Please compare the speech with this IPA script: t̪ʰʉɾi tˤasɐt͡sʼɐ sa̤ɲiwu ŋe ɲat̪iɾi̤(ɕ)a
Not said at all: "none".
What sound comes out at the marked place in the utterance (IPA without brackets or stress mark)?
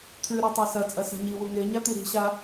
ɕ